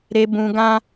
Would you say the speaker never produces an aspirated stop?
yes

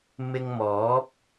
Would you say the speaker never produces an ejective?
yes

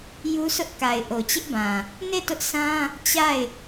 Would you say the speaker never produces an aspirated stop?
yes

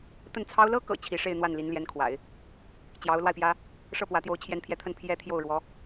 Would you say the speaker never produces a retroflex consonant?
no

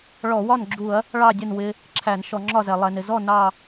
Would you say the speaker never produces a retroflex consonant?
no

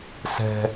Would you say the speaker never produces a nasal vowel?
yes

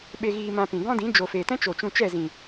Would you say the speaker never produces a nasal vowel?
no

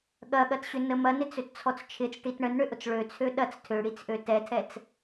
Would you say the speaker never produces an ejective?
yes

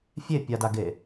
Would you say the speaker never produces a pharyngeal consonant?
yes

